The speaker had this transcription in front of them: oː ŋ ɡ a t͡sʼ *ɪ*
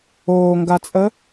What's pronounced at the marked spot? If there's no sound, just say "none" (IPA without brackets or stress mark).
ə